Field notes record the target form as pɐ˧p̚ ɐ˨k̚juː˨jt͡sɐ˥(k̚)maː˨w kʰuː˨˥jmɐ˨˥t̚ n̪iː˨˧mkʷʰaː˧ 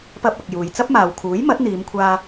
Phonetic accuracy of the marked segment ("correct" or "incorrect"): incorrect